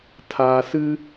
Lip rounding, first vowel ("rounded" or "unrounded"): unrounded